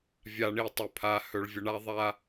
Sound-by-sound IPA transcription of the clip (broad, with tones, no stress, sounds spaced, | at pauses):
vʲ a˨ ɳ i˨ tˤ ɵ˨ pʰ a˨ h ɵ˨ ɭ vʲ ə˨ ɳ a˦ ðˤ a˦